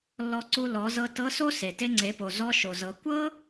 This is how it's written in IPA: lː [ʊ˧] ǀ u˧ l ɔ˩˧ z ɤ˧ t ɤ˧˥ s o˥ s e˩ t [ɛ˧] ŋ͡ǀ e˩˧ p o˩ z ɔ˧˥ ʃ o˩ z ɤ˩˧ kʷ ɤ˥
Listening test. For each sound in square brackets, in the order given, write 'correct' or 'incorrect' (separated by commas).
incorrect, incorrect